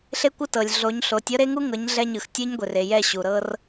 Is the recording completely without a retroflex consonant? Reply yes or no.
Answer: yes